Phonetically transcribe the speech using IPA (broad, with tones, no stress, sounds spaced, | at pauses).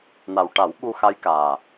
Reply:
n a˨˩ w ʈ a˨˩˦ w ɓ u˧ x a˧˥ j k aː˨˩